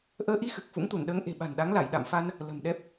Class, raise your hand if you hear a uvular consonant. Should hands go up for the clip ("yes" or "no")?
no